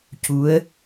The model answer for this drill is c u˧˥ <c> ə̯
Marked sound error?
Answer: yes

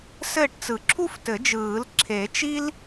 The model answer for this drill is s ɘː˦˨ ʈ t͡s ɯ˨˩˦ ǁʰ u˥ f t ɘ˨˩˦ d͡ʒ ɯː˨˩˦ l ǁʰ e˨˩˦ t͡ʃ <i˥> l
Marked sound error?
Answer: no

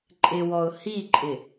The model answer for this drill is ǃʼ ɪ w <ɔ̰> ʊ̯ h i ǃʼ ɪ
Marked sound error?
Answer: yes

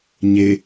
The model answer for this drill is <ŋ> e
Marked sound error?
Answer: yes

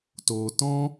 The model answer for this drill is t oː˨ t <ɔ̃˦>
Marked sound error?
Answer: no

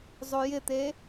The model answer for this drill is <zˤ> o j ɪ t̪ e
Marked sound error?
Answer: no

